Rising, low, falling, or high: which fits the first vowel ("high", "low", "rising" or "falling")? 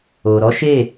low